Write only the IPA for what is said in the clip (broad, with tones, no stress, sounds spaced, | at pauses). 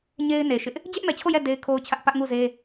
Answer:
ɲ e˦ ɪ̯ n e˨ ʃ ɪ˦ ʔ | d͡ʑ ɛ˦ ʔ m ɛ˨ t͡ɕʰ o˦˨ j ɛ˦˨ d e˦ ɪ̯ kʰ o˦ ʊ̯ t͡ɕʰ ä˦ ʔ p ä˦ ʔ ŋ u˦˨ z e˦